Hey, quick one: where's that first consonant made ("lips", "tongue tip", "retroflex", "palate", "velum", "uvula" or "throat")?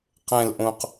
uvula